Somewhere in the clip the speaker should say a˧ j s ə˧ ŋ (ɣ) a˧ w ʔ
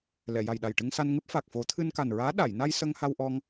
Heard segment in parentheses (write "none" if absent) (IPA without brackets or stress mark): h